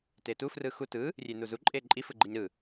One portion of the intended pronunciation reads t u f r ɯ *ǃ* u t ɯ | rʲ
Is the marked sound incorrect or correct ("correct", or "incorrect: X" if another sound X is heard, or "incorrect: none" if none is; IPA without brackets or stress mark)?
incorrect: x